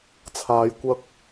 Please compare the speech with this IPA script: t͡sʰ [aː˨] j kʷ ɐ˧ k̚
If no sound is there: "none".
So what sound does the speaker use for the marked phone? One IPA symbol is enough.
aː˨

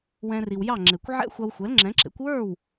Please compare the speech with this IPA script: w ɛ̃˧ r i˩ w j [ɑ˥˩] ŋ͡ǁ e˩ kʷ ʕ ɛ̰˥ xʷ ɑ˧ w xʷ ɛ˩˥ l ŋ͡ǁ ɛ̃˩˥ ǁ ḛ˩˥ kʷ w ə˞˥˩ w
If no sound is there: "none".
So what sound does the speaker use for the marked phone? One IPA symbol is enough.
ɑ˥˩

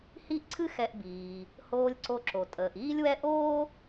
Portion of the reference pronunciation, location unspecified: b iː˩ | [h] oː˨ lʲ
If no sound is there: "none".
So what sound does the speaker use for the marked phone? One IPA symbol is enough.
h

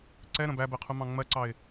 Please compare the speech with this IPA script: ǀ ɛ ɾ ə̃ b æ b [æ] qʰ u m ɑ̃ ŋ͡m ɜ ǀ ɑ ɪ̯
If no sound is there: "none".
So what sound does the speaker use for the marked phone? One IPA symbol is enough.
ɛ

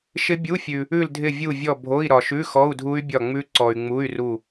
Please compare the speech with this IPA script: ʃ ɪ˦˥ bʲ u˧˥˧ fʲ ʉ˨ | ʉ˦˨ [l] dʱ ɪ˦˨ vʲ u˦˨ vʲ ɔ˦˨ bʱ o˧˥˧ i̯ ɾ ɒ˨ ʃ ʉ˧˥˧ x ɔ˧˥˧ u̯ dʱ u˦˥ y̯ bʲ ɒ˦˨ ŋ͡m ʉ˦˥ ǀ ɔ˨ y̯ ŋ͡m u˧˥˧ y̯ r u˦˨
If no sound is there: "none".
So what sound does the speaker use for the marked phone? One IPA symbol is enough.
l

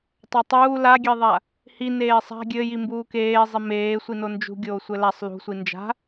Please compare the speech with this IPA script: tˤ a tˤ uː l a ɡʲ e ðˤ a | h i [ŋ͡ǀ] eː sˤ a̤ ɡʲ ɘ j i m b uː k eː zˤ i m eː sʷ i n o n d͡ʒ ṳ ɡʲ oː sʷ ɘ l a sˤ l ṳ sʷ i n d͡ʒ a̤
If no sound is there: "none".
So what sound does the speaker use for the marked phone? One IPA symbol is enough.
n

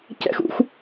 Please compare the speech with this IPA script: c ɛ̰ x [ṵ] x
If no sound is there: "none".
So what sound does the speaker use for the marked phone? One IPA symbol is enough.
ṵ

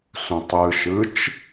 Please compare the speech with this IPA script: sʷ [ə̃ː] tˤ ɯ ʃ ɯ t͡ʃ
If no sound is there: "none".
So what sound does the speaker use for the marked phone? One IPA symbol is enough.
ə̃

